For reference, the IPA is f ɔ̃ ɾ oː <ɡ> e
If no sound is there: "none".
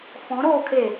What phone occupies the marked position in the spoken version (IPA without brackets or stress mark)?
kʰ